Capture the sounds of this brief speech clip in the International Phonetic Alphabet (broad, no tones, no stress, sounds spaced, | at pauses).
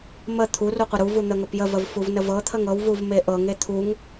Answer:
m ə t̪ʰ u r u qʷ ə ɾ u v u n̪ ə ŋ ə p j ə v ə v f u v n ə v ɤ t̪ʰ ə ŋ ɤ w v u v m e ʔ ɤ ŋ e t̪ʰ u ŋ